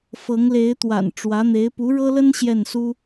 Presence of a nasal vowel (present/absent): absent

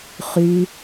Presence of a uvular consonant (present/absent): present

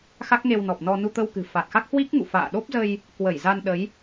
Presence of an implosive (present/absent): present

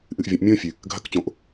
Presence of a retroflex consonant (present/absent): absent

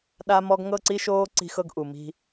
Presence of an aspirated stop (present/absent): absent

